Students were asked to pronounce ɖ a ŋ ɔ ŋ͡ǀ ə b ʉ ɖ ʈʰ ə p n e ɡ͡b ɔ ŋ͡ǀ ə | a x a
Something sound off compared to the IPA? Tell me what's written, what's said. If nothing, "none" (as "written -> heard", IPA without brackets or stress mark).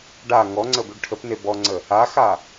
ɡ͡b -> b